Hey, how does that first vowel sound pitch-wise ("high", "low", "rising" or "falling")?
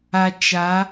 low